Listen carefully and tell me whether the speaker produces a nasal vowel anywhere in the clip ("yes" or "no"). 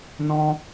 yes